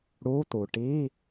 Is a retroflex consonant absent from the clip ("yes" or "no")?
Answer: no